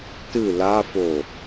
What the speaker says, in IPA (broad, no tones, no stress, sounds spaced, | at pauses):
t ɨ l a f o